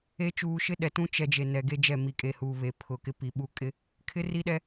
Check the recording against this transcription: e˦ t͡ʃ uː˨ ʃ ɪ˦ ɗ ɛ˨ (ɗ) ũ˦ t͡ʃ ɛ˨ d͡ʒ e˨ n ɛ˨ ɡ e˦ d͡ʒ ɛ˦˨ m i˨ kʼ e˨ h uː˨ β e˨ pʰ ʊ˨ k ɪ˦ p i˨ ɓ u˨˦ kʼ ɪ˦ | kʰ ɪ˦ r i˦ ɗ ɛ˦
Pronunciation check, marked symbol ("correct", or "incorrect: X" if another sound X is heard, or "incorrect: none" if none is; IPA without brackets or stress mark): incorrect: t